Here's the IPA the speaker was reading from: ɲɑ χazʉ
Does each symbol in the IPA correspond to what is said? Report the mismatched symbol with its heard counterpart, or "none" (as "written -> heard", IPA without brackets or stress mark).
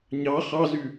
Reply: a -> ɑ